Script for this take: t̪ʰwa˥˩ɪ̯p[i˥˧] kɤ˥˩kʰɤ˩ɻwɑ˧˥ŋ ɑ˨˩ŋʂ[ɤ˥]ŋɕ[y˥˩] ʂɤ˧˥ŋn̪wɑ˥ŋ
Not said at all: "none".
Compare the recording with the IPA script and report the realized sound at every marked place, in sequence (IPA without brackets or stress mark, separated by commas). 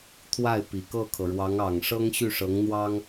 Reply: i˨˩, ɤ˥, y˥˩